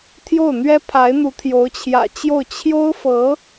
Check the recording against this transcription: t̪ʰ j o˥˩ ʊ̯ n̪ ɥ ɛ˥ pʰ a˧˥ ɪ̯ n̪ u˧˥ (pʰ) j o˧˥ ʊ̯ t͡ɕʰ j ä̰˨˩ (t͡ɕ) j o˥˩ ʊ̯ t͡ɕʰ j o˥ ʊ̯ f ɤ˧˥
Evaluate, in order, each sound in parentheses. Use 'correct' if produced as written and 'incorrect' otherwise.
incorrect, correct

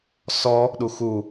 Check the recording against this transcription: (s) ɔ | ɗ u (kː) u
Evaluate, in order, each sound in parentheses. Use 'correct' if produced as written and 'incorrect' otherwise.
correct, incorrect

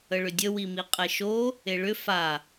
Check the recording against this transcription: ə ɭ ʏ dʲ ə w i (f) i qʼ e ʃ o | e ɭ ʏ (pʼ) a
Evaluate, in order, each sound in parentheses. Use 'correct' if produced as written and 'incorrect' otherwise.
incorrect, incorrect

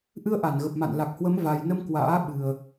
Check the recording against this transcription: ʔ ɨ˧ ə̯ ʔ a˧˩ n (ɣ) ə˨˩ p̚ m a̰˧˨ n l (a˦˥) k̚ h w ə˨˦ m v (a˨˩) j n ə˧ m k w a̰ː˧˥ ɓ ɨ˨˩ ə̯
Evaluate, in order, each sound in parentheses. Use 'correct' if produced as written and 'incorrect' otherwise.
correct, incorrect, correct

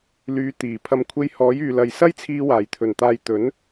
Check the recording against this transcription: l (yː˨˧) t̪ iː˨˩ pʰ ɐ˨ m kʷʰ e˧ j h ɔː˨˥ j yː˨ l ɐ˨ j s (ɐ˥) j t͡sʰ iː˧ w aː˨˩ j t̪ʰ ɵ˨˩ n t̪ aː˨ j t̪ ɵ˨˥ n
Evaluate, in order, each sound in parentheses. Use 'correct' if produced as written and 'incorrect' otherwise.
correct, correct

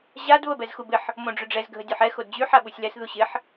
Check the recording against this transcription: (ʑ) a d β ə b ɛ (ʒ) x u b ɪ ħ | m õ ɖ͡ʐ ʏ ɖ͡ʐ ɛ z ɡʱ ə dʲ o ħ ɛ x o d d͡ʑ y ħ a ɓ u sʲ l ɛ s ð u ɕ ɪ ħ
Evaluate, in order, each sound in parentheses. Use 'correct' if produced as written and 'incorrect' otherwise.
correct, incorrect

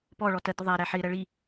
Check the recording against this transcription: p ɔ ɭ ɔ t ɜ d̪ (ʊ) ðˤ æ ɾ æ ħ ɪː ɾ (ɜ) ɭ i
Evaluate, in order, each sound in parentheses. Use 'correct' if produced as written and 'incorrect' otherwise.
correct, correct

